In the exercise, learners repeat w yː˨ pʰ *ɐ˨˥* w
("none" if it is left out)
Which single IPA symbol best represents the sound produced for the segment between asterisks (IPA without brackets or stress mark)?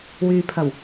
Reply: ɐ˨˩